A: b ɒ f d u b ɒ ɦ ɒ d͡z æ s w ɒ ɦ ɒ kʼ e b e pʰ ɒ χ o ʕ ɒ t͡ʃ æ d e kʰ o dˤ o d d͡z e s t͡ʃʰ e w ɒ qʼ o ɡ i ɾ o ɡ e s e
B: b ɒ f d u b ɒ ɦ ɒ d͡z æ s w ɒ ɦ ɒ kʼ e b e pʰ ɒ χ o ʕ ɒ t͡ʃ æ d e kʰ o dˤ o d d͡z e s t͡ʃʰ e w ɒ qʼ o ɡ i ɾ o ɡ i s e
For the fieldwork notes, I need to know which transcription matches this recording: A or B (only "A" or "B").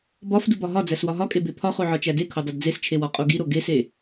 A